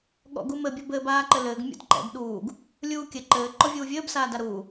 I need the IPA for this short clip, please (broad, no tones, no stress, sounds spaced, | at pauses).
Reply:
ɠ ɔ̰ ɡ u m ɘ bʲ ɔ b ɘː b aː ǃ ɘ l ɘː ɡ mʲ ɔ̰ d ǃ ɛ̰ b ɗ uː ɡ | lʲ uː kʲ ɘ ǃ ɘː ǃ ɔ vʲ uː vʲ ɘː b s aː d a ɾ uː